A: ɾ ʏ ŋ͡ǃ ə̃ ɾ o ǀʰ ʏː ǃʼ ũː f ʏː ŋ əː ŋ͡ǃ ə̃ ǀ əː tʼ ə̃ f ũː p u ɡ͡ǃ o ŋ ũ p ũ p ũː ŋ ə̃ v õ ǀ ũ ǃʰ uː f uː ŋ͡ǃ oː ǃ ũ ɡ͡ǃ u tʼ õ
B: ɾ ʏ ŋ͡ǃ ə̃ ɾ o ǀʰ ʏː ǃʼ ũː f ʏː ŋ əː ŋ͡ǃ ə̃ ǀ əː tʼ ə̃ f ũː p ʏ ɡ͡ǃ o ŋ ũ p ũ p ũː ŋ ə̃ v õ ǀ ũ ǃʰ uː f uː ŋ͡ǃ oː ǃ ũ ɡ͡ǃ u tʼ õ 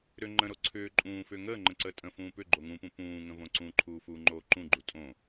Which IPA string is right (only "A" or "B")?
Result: B